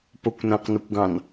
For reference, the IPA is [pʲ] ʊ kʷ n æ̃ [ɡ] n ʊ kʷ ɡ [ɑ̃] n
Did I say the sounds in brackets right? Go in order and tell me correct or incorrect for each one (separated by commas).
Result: incorrect, incorrect, correct